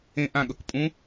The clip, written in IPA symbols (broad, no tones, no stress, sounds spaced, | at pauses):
ẽ ʔ ã ɠ ɤ k pʼ ũ